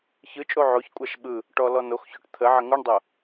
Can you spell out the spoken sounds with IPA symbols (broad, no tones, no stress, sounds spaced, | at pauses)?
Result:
ç ɯ t͡ʃʼ o ʕ o ç kʷʼ a ʃ ɓ ɯ | ʈ ɔ l ɔ n o x ç o ʈ t̪ʰ ə ʕ ə ŋ u ɳ dˤ o